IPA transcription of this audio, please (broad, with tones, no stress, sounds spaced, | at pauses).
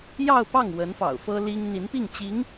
j ɑ˥˧ ʊ̯ p ɑ˥˩ ŋ w ə˧˥ n f ɑ̰˨˩ ʊ̯ f ɤ˥ l i˥ ŋ n̪ i˧˥ n p i˥˩ ŋ t͡ɕ i˧˥ ŋ